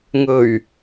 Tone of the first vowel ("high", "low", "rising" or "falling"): low